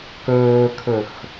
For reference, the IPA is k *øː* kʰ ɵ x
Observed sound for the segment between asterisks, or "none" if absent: ɵː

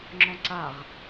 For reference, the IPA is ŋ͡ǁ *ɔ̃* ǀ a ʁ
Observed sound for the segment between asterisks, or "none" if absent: ɔ̃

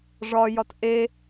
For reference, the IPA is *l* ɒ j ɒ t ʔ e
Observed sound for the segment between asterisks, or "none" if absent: ʐ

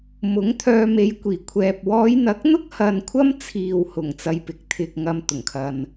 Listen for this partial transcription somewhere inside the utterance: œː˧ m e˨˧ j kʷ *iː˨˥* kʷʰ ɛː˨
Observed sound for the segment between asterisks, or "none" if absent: iː˨˩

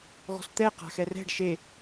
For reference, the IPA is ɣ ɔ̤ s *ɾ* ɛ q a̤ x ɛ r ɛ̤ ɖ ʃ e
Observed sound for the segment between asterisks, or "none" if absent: t̪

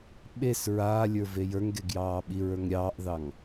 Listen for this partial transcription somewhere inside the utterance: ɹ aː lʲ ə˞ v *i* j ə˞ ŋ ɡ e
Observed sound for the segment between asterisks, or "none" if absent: e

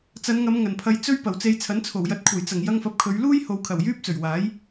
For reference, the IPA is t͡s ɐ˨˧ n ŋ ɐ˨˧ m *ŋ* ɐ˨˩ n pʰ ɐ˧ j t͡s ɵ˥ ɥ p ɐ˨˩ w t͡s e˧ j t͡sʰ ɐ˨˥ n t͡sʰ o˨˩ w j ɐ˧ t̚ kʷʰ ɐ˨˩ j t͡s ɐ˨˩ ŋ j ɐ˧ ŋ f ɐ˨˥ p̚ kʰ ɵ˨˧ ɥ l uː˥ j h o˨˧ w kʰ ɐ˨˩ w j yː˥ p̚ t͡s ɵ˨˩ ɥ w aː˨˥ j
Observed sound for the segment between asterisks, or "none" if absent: ŋ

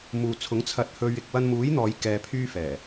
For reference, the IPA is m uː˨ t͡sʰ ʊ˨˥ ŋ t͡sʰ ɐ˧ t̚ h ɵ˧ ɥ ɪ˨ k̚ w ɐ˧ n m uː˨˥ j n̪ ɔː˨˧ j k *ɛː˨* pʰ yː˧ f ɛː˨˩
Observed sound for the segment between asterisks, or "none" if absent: ɛː˨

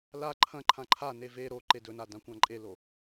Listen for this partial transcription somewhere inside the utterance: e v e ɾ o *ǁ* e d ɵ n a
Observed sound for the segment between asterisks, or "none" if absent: ǃ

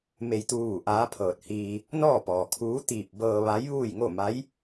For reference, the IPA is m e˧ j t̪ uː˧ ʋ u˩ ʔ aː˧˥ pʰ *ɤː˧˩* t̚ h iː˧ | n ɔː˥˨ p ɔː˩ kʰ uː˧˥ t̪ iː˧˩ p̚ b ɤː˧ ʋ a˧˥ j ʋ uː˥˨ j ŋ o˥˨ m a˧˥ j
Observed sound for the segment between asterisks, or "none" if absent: ɤː˧˩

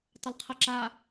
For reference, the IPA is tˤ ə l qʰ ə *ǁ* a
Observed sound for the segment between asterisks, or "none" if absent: ǁ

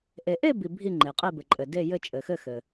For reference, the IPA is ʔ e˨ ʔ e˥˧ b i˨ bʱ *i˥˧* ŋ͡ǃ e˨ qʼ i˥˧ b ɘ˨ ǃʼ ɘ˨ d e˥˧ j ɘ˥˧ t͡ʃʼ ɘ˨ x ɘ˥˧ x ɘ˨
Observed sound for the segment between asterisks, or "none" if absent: i˥˧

